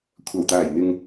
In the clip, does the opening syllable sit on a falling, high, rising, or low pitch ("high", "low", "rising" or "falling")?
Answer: low